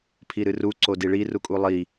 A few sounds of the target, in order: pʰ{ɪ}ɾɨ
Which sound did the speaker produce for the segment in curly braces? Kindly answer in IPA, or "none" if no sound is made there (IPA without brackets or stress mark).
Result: i